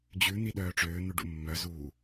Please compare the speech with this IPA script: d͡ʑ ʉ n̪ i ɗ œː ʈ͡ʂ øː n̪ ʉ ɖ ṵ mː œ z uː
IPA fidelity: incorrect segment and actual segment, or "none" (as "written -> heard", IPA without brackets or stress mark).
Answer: none